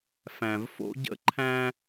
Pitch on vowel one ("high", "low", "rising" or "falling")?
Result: low